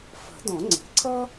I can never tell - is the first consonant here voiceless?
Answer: yes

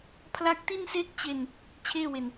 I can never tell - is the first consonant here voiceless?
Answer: yes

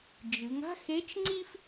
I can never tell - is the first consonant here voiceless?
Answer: no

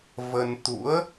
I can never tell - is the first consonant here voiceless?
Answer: no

